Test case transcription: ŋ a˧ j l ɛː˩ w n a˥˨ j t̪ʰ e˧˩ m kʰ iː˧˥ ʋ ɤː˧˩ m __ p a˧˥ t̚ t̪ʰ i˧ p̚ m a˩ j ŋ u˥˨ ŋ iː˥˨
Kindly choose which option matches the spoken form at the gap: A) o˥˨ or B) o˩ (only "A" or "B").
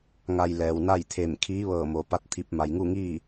B